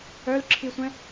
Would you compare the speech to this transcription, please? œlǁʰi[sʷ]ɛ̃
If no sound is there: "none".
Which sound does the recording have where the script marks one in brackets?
sʷ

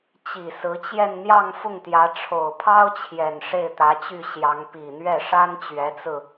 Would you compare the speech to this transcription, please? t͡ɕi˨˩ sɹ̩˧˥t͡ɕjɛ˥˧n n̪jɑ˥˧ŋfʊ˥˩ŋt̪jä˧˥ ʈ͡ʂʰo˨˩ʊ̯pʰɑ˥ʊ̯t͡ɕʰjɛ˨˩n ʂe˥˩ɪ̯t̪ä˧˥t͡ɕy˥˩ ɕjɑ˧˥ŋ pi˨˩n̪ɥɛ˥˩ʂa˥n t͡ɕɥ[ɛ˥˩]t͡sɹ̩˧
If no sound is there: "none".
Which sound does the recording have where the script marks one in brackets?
ɛ˧˥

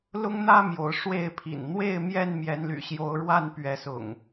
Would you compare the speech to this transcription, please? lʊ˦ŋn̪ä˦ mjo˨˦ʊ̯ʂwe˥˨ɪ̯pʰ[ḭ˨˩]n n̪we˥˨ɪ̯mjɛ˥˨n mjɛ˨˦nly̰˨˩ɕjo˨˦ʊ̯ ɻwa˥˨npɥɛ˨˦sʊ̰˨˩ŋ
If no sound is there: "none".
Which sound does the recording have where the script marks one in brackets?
ḭ˨˩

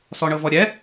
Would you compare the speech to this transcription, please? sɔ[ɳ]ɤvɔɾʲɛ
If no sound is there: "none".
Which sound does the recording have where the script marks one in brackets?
ɳ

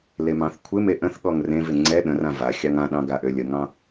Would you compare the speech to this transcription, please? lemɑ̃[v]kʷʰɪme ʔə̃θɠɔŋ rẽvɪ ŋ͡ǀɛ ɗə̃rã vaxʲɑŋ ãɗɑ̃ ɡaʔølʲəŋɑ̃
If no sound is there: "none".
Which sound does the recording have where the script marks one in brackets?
θ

